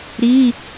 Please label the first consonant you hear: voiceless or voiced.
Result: voiced